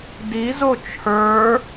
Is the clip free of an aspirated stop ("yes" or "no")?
no